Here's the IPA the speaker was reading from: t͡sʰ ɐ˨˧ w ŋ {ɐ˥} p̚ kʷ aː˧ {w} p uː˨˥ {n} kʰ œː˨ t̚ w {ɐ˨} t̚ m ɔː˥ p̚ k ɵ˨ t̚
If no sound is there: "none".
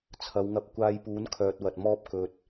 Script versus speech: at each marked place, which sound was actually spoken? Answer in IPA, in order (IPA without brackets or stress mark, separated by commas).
ɐ˧, j, n, ɐ˨